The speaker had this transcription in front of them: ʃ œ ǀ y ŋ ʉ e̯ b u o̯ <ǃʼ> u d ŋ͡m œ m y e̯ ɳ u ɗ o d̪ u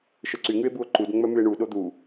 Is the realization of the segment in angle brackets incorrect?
yes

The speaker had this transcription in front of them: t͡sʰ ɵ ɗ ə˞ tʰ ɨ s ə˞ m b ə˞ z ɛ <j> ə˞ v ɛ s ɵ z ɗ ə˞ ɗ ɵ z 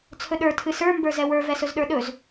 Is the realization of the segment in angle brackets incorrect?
yes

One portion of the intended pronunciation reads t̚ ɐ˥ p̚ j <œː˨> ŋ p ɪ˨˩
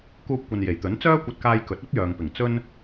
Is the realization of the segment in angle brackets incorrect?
no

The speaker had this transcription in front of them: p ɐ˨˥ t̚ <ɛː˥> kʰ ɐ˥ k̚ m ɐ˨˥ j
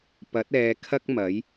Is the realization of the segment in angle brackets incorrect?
yes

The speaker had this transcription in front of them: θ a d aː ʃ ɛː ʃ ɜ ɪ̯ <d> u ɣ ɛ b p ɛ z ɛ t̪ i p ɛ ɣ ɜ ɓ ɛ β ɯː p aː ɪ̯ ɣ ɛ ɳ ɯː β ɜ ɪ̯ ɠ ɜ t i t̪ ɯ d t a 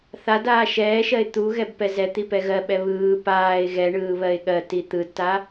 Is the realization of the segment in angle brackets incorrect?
yes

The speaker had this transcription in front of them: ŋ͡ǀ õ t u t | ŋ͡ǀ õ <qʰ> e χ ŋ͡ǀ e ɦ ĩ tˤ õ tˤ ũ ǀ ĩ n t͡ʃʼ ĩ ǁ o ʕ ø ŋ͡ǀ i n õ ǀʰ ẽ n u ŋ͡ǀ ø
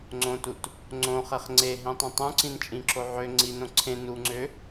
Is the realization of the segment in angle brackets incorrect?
yes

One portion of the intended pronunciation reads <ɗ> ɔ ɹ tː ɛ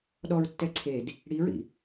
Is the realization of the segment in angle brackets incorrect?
no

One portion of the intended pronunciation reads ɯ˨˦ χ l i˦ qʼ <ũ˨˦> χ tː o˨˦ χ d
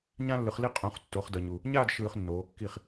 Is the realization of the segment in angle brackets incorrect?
no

